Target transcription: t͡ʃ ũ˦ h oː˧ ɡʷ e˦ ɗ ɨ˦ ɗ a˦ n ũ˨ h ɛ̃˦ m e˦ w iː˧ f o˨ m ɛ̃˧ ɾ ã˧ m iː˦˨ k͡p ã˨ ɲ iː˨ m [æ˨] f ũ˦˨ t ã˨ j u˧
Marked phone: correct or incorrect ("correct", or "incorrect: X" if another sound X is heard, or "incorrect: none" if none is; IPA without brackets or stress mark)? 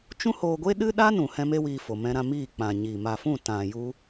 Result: incorrect: a˨